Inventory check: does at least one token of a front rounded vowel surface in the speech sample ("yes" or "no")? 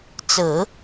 no